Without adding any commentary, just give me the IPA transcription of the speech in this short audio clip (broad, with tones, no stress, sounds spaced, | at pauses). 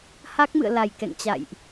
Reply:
h a˦˥ k̚ m ɨ̰˧˨ ə̯ l a˨˩ j k ɛ̰˧˨ ŋ t͡ɕ a̰˧˨ j ʔ